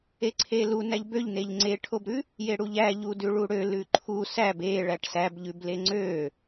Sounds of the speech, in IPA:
e ǀʰ e l u n æ ʎ b ø ʎ n e ʎ ŋ͡ǀ e ʈʰ o b ɾ ʉ | j e ɽ u ʎ æ ʎ u d ʉ ɭ u ɽ ø l ʉ ǃʰ u s æ b e ɭ æ ʈ s æ b ʎ ʉ b l e ŋ͡ǀ ø

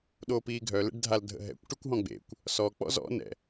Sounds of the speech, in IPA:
ɗ oː p iː ɡʱ œ l ḛ ɖ dʱ a l dʱ ə̰ ɦ ɛ̰ kʷ ʈ y kʷ ɦ ɔ̃ ɡ͡b ḛ kʷ | s ɔ k͡p ɔ̰ z ɔ̰ n ɛ̰

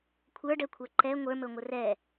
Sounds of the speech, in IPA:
kʷʰ ə˞ ɖ ɛ kʷʰ ə˞ ǃ ɛ ŋʷ ə˞ m ɵ ŋʷ ə r ɛ

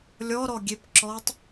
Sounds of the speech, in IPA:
lʲ ɔ ɾ ɔ ɡʲ e p ǁ ɔ tˤ

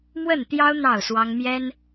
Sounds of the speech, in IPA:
m w ə˥˨ n t̪ j ɑ˦ ʊ̯ n̪ ɑ˥˨ ʊ̯ s w ɑ˦ ŋ m j ɛ˦ n

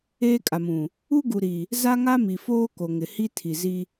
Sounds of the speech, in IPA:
eː˦ kʼ a˨ m ũ˨ | u˦ ɡ u˨ ɾ i˨ | z a˦ ŋ a˦ m i˨ f oː˦ k o˨ ŋ ɪ˨ h i˦ tʰ i˨ z i˦

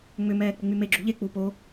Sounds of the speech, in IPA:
ŋ͡m ʏ m ɛː k͡p ɪ ŋ͡m y m e ɡ͡ǁ u ʎ e k͡p u p o

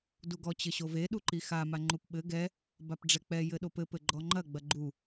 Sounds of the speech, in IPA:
d u ɡ ɔ t͡ɕ ɘ ɕ o v e ɗ u ǃ i x a m a ŋ͡ǃ u p ɓ ɘ ɡ ɛ | b a p ɖ͡ʐ ɛ k͡p ɛ j ɘ ɗ o p ɘ p ɘ ɡ͡ǃ ɔ ŋ͡ǃ ɐ ɡ͡b ɐ ɡ͡ǃ u

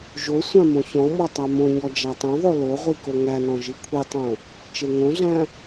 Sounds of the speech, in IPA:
ʒ o sʷ ã m õ ç ɔ̃ m ɔ tˤ a m õ ɲ ɔ d͡ʒ a tˤ õ ðˤ o l o ʁʷ i k o ŋ æ n ɔ̃ ʒ i kʷʰ i tˤ õ | t͡ʃ e ŋ õ ɮ æ̃

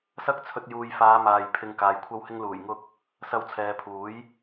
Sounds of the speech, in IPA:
s ɐ˥ k̚ t͡sʰ ɵ˧ t̚ j uː˨ j f aː˨˧ m aː˨ j pʰ ɪ˨ ŋ k aː˨ j kʷʰ ɐ˥ w h ɪ˥ ŋ l uː˨˩ j ŋ ʊ˧ k̚ | s ɐ˧ w t͡sʰ ɛː˨ pʰ uː˨˥ j

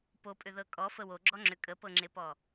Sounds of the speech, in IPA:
p o pʼ ʏ ð ɤ kʼ ɔ f ə w o ɡ͡ǁ ɔ ŋ͡ǁ ʏ kʼ ə p ɤ ŋ͡ǁ e p ɔ

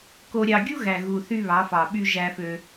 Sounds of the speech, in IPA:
k o˨ ɾʲ ɑ˨ ɡʲ u˦ ɣ æ˨ ɣ u˨ θ y˦ β ɑ˨˦ f ɑ˨ ɓ y˦ ʒ æ˦ f ø˦

